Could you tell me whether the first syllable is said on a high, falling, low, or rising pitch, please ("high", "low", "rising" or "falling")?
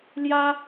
high